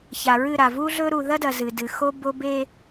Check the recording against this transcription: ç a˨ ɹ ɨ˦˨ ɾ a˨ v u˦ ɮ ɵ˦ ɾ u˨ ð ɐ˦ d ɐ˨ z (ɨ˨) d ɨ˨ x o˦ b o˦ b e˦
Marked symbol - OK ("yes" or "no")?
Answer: yes